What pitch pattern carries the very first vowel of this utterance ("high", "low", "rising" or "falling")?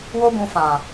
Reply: high